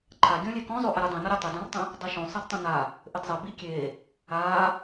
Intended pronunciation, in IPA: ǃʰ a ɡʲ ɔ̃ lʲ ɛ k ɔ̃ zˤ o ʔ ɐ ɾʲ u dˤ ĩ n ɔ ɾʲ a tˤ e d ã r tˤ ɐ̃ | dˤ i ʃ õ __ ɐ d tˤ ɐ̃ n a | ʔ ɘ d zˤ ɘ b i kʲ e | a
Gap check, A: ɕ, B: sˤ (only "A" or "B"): B